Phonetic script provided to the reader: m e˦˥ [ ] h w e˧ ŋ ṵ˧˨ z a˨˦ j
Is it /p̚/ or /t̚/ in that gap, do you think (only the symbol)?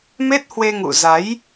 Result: t̚